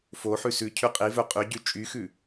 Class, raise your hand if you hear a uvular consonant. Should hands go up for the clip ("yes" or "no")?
yes